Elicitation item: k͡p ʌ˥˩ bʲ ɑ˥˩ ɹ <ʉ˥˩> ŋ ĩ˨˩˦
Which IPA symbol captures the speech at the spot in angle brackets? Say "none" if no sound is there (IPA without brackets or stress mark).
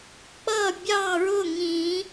ʊ˥˩